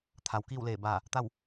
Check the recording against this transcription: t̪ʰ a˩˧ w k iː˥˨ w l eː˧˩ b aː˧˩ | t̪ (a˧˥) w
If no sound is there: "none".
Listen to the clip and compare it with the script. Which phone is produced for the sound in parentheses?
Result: a˥˨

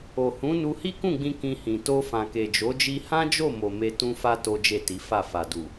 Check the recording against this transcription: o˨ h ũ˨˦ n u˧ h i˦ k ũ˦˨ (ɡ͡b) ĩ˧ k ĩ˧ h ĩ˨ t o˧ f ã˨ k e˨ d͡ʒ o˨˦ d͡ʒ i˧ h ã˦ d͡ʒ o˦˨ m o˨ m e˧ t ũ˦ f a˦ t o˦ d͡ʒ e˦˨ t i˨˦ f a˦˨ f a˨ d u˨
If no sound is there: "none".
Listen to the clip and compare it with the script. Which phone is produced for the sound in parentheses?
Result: ɡ͡b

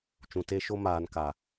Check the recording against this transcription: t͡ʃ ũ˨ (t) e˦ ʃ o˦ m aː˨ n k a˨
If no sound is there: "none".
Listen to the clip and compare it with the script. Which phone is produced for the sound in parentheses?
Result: t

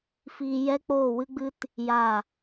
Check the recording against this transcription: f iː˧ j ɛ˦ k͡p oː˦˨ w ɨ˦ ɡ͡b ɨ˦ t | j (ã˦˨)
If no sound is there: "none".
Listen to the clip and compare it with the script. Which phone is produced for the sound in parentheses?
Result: a˦˨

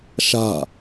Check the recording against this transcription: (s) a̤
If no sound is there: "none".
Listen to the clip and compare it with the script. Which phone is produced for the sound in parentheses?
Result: ʃ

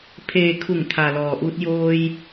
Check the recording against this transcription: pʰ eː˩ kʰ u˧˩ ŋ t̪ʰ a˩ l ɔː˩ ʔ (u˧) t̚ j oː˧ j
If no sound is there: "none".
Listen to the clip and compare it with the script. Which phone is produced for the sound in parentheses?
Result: u˧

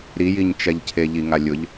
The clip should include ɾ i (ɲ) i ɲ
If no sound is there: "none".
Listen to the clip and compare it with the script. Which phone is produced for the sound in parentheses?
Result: j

